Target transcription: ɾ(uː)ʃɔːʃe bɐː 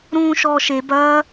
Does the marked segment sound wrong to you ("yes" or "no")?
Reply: yes